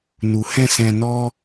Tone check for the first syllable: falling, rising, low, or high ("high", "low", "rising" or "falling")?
low